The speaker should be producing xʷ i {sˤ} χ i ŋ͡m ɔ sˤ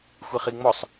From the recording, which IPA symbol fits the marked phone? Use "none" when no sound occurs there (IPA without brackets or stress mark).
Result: none